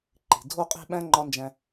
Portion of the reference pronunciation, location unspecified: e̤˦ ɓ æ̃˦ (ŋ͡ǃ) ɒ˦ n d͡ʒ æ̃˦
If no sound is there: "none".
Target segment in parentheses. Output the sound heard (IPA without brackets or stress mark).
ŋ͡ǃ